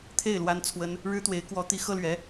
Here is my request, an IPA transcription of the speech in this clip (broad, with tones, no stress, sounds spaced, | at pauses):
t̪ʰ e˥˩ ɪ̯ l w a˥ n t͡sʰ w ə˥ n | ɻ ɻ̩˥ t̪ w e˧˥ ɪ̯ k w ɔ˧˥ t̪ i˧˥ x ɤ˥ l ɥ ɛ˧˥